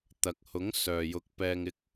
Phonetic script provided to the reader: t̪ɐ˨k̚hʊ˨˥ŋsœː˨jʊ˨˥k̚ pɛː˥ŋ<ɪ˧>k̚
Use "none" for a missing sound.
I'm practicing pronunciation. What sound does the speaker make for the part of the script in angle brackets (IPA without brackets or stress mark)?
ɪ˥